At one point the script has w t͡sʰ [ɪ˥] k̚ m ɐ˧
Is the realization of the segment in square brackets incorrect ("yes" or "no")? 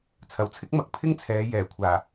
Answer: no